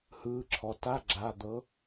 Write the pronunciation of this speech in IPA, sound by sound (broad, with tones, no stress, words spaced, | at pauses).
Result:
hɯː˩˧˩ǁʰɔ˩ta˧˥˧ ɡ͡ǁa˩˧˩d̪ɤ˨˦